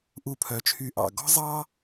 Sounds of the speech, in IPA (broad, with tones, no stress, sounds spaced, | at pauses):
ʔ u˧˩ pʰ œ˩˧ t͡ʃʰ y˧˩ ʔ ɑ̰˧˩ ɡ ɔ̤˥ zˤ ɑ˥